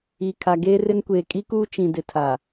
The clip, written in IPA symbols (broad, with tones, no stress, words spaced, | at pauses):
i˨ kʰa˨ ɡeː˦rɪ˦nkʷeː˨ kʼi˦kuː˦ t͡ʃĩ˨ dɪ˨tʰa˨